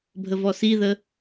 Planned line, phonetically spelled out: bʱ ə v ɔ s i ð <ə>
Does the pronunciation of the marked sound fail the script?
no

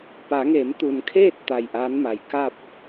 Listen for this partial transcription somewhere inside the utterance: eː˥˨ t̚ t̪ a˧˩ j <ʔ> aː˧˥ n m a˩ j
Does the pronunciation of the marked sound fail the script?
no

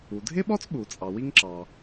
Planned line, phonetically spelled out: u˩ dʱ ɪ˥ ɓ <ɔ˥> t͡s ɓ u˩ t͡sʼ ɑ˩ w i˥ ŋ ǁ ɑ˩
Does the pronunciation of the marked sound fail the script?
no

